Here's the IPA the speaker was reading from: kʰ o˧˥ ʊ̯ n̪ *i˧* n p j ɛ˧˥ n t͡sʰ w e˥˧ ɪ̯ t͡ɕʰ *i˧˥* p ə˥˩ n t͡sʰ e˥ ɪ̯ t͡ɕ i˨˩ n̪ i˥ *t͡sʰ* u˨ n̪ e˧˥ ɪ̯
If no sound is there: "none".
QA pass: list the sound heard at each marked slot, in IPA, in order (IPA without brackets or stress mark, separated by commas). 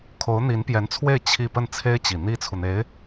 i˧˥, i˥˧, t͡sʰ